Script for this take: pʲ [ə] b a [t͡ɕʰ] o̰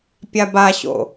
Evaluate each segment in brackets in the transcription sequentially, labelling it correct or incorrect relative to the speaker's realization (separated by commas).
incorrect, incorrect